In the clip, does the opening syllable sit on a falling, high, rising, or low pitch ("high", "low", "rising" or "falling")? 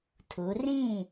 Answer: rising